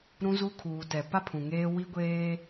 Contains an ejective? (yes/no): no